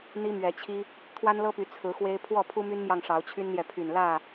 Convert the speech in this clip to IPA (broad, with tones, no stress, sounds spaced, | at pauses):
n̪ i˦ m ɥ ɛ˨˦ t͡ɕʰ i˦ | t̪ʰ w a˦ n l ɤ˦ p y˨˦ t͡sʰ ɹ̩˨˦ x w e˦ ɪ̯ pʰ w ɔ˥˨ pʰ u˦ m y˦ n m j ɑ˨ ŋ ʂ ɑ˨˦ ʊ̯ t͡ɕʰ y˦ n n̪ j ɛ˨ pʰ y˨˩ n l ä˥˨